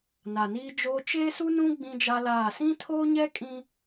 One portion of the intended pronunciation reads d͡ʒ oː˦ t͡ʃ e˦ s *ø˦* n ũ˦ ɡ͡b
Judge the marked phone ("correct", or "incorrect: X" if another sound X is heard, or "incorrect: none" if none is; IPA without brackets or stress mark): incorrect: u˦